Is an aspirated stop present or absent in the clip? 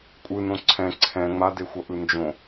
present